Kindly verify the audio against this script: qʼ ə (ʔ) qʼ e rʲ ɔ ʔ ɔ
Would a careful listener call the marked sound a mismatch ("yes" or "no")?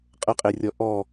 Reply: yes